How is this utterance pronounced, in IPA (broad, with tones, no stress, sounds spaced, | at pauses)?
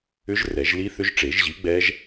ʏ˦˥ ʒ r ɛ˨˩˦ ʒ l i˦˥ θ ʏ˦˥ ʒ ʈ͡ʂ e˨˩˦ ʒ ʑ i˨˥ ɡ͡b ɛ˦˥ ʒ